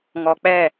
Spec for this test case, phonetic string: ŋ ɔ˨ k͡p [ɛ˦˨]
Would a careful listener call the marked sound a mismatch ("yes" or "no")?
no